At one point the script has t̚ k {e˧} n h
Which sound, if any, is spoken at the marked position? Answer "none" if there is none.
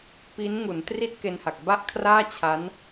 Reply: e˧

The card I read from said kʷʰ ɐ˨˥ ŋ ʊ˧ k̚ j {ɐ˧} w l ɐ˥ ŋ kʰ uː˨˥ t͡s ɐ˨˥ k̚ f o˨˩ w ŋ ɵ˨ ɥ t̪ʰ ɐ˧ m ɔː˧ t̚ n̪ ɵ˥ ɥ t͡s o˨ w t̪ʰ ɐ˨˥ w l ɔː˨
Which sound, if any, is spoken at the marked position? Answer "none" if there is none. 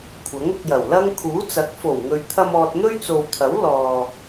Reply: ɐ˨˩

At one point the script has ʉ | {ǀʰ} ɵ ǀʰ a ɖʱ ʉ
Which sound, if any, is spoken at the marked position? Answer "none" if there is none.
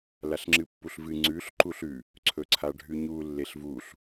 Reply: ǀʰ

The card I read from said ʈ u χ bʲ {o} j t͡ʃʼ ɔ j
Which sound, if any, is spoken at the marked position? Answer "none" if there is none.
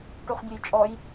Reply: u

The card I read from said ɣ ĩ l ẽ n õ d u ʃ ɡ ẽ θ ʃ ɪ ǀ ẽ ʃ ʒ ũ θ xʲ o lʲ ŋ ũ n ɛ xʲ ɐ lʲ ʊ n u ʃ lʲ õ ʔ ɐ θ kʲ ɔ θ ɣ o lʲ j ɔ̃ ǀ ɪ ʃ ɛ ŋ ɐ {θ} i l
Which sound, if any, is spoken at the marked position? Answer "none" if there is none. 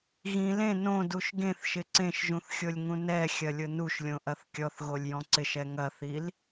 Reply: θ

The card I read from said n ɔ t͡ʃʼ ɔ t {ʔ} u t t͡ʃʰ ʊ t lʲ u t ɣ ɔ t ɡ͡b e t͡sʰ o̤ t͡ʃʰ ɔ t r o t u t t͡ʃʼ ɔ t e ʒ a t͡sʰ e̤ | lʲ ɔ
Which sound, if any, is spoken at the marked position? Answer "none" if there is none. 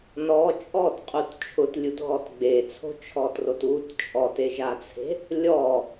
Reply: qʼ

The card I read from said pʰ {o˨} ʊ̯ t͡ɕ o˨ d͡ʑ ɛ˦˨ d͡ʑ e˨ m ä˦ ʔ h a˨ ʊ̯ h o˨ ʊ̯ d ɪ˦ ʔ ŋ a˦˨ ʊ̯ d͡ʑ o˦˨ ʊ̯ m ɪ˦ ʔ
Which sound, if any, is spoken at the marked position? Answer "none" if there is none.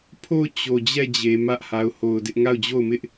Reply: o˦˨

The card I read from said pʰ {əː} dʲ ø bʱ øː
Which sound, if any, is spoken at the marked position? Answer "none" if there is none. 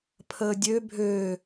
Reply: əː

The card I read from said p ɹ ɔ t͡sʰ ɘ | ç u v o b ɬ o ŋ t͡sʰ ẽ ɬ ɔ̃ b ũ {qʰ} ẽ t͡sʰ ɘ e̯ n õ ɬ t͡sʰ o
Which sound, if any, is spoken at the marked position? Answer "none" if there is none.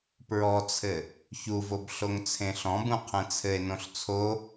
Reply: qʰ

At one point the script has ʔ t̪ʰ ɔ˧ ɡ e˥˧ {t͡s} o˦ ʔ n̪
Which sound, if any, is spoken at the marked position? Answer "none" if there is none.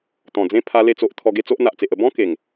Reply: t͡s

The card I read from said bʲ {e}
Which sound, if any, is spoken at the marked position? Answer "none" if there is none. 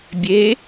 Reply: e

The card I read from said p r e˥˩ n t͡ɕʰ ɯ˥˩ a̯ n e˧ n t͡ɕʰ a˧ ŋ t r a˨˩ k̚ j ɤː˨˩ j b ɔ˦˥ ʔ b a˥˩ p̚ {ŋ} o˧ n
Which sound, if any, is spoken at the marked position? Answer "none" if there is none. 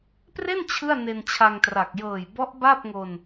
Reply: ŋ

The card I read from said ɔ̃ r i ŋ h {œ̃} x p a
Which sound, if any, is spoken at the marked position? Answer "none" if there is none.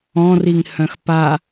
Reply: œ̃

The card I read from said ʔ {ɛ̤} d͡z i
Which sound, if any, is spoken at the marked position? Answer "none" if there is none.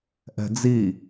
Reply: ɛ̤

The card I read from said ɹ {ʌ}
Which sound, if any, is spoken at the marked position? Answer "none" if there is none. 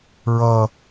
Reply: ʌ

